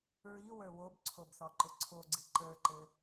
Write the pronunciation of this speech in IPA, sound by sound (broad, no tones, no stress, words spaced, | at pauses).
ɹiwə˞ wobǀʰobθɔǃʊ ǀʰoɡ͡ǀi ǃə˞ǃɘ